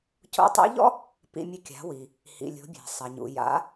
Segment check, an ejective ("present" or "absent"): absent